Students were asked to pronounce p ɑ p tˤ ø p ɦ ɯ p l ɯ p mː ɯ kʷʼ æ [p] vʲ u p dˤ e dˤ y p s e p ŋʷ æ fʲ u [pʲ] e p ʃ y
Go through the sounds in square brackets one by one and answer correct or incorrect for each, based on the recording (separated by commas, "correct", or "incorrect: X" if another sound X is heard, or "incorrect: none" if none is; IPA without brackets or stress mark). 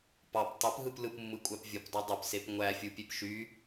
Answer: correct, correct